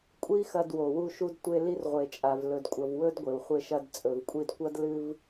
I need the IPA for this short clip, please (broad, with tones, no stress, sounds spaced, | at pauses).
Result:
kʷʼ i˦ x ɐ˧ d w o˨ w u˧ ʃ u˧ d tʷ e˧ l i˧ r ʁʷ e˨ t͡ʃʼ a˨ v l ɵ˨ d kʷʼ ɐ˨ v w ɵ˦ d ɡʷ e˨ w χʷ e˧ ʃ ɐ˧ d t͡sʼ ɵ˨ v kʷʼ i˧ d kʷ ɐ˦ d l ɨ˧ v